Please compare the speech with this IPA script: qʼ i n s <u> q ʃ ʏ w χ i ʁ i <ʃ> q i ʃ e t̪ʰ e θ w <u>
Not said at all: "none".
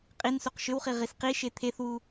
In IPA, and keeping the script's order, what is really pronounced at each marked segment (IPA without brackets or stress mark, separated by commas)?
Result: u, s, u